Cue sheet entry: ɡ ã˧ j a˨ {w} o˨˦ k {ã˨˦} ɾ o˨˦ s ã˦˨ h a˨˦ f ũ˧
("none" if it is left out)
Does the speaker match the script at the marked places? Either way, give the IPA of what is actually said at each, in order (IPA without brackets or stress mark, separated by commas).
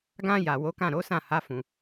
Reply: w, ã˦˨